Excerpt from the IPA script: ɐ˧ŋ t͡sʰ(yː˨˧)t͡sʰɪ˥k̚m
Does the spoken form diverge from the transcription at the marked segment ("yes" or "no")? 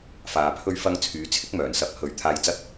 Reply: no